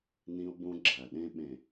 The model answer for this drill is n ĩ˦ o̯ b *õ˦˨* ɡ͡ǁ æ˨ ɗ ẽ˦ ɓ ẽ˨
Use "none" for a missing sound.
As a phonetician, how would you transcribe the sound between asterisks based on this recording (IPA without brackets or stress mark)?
õ˦